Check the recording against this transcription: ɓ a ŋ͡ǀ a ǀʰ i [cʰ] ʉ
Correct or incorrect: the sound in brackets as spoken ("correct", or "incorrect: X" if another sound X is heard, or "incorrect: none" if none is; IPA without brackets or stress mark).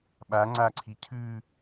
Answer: correct